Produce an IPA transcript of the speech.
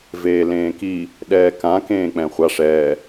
v eː l ẽː k i | ɗ ɛː k ã k ẽː k͡p ɛ̃ χʷ a ʂ ɛː

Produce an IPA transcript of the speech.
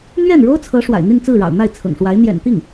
n̪ ɥ ɛ˥˩ n ɻ o˥ ʊ̯ t͡sʰ ɤ˧˥ ʂ w a̰˨˩ ɪ̯ n̪ i˥˧ n t͡s ɹ̩˥˩ ɻ ɑ̰˨˩ ʊ̯ n̪ a˥˩ ɪ̯ t͡sʰ ɤ̰˨˩ ŋ ʂ w a˧˥ ɪ̯ n̪ j ɛ̰˨˩ n t̪ i˥˩ ŋ

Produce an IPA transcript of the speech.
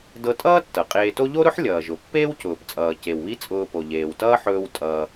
d ɤ˧ tʼ ʌː˥ tː ɤ˩ qʼ eː˧ t o˥ ʎ o˥ ɾ ʊ˥ ħ lʲ ʌː˩ ʒ ʊ˩ pː eː˥ w c ʊː˩ p t͡sʼ ʌː˩ c e˩ w β i˥ t͡sʼ ʊː˧ p o˩ ʎ eː˩ w t ʌː˥ ħ ɵː˧ w tʼ ʌː˩

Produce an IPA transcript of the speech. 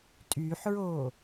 tʼ yː ħ ɹ oː

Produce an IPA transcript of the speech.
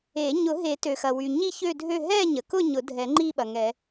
e˨˩˦ ɲ ʊ˨˩˦ ɦ e˨˩˦ t ø˩ x ɐ˩ w y˩ ɲ i˥˧ ç ø˥˧ dʱ ø˥˧ ɦ ɛ˥˧ ɲ ə˩ k ʊ˥˧ ɲ ʊ˨˩˦ dʱ ɛ˨˩˦ ŋ͡ǃ i˥˧ ɓ ɐ˩ ŋ ɛ˨˩˦

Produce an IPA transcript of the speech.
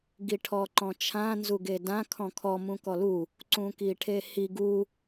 ɡ i ʈʰ ɔ ǃ ɔ̃ t͡ʃʰ ã n z u ɡ e d ã kʰ ɔ̃ kʰ ɔ m ũ k ɔ l u | ǀ ũ k i ʈʰ e h i ɡ u

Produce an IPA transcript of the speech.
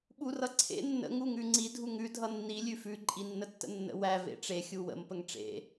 ɓ u r ʌ ǀʰ ḛ nː ə̰ ŋ u ŋ ʉ ŋ͡ǀ i dʱ u ŋ ʉ dʱ ʌ nː i lʲ ʉ f ʉ ǃʼ i nː ə tː ə̰ nː ə̰ w æ v ḛ ʈ͡ʂ e xʲ u w ə̰ m p ə ŋ ʈ͡ʂ ḛ

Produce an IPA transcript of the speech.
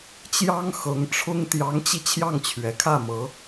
t͡ɕ j ɑ˥ ŋ x ɤ˧˥ ŋ ʈ͡ʂʰ ʊ˥ ŋ t̪ j ɑ˧˥ ŋ t͡ɕ i˧ t͡ɕʰ j ɑ˥˩ ŋ t͡ɕʰ ɥ ɛ˨˩ kʰ ä˥˩ m ɤ˧˥

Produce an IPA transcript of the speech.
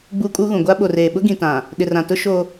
ɡ͡b uː˦ kʼ uː˦ ɣ ũ˨ ɡʷ a˦ ɓ o˨ r eː˨ ɓ ʊ˦ ɡ ĩ˨ t ã˨ | ɗ ɪ˨ r ã˨ t ʊ˦ ʃ o˦

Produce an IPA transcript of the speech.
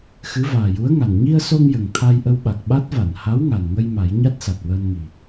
x ɨ˧˥ v aː˨˩ j u˧˥ ə̯ ŋ a˨˩ n ɲ i˧ ə̯ s o˧ ŋ j ə˨˩ ŋ t̪ʰ a˧ j ʔ ə˧ w ɓ a˨˩ k̚ ɓ a˦˥ t̚ v a˨˩˨ n h a˧˥ w ŋ a˨˩ n ŋ ə˧ j m a˨˩˦ j ɲ a˦˥ t̚ s a˨˩ t̚ w əː˧ n ŋ i˨˩

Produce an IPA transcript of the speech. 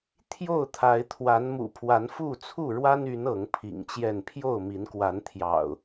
t̪ʰ j o˥˨ ʊ̯ t̪ʰ a˨˦ ɪ̯ t̪ʰ w a˨˦ n m ṵ˨˩ pʰ w a˨˦ n f u˥˨ t͡sʰ u˥˨ ɻ w a˦ n y˨˦ n ɤ˨˦ ŋ pʰ ḭ˨˩ ŋ t͡ɕ j ɛ˥˨ n pʰ j o˥˨ ʊ̯ m i˨˦ n k w a˨˦ n t̪ʰ j ɑ̰˨˩ ʊ̯

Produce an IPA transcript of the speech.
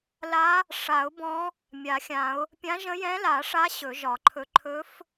l a˧˥ | ʂ a˨˩˦ ʊ̯ b ɔ̃˧˥ | mʲ a˨˩˦ xʲ ã˨˩˦ ʊ̯ | pʲ ã˧˥ ʒ ə̃˧˥ j ɛ̃˧˥ l a˨˩˦ ʂ a˧˥ ɕ ɵ˨˩˦ ʒ ɒ˨˩˦ ǃʰ ɵ˧˥ ǃʰ ɵ˧˥ f

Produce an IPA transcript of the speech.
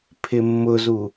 pʰ ɪ mː ʊ z u

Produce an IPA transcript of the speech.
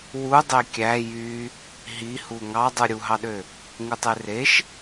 w u dˤ e kʲ æ j y | ɦ i h u ŋ ɑ dˤ ɯ ɾʲ u ɦ ɑ ɗ ø | ŋ u tˤ e r e ʃ

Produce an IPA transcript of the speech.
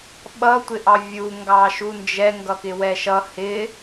ɓ ʌ tʷ ɪ ʔ ɑ vʲ u ŋ ɡ ɑ ʃ u n d͡ʒ ɛ ŋ ɡ ʌ k ɪ w ɛ ʃ ʌ h ɪ

